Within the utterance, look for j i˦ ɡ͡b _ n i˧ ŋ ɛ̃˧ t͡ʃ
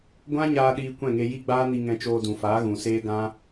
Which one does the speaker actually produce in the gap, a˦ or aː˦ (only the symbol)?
aː˦